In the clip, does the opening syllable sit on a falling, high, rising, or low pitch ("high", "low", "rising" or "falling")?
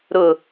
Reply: low